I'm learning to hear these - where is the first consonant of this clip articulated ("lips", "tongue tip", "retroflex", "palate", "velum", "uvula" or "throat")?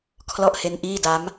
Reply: velum